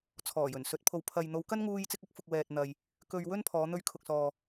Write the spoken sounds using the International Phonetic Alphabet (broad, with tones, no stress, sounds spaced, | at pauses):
t͡sʰ ɔː˨˩ j ɵ˨˩ n s ɵ˨˥ t̚ pʰ o˨ w pʰ ɐ˨ j n̪ o˨˧ w k ɐ˥ n ŋ uː˥ j t͡s ɪ˥ k̚ ɐ˨˥ k̚ f ʊ˧ k̚ w ɛː˨ t̚ n̪ ɐ˨ j | k ɵ˧ ɥ w ɵ˥ n pʰ ɔː˨˧ n̪ ɵ˧ ɥ kʰ ʊ˨ k̚ s ɔː˨